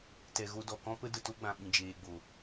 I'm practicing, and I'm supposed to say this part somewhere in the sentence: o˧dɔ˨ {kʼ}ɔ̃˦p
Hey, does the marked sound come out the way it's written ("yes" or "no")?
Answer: no